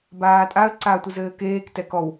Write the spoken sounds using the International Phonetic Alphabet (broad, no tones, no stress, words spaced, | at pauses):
baːtʼaə̯ ǀatʷɨzɘːkeːk tɛkɔw